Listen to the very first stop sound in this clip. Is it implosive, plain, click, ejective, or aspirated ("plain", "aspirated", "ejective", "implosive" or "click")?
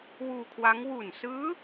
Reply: aspirated